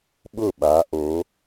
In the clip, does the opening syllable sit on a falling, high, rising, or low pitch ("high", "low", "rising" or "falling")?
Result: falling